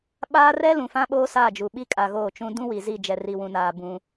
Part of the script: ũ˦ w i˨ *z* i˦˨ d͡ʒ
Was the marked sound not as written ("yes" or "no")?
no